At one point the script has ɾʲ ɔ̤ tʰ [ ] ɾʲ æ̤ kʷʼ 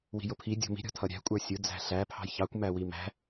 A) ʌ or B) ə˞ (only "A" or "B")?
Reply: A